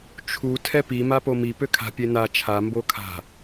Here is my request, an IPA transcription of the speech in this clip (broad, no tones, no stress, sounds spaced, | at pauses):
t͡ʃʰ u tʰ ɛ p i m a p o m i p ø kʰ a̤ pʲ e n a t͡ʃʰ a m b o kʰ a̤